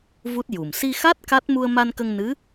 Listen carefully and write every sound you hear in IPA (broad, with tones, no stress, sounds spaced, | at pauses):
v u˦˥ t̚ j u˨˩ m s i˧ x a˦˥ t̚ k a˦˥ t̚ m u˧ ə̯ m a˧ n k ə˧ ŋ n ɨ˧˥